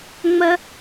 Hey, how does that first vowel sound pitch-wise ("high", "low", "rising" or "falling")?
high